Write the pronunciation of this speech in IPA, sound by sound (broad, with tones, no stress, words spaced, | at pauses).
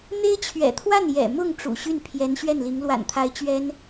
n̪e˥ɪ̯t͡ɕʰɥɛ̰˨˩t̪ʰwa˥˩n jɛ̰˨˩mʊ˥˩ŋ ʈ͡ʂṵ˨˩ɕy˥˩npʰjɛ˧˥n ɕɥɛ˥˩nli˧˥ŋ lwa̰˨˩nt̪ʰa˧˥ɪ̯ t͡ɕɥɛ˥n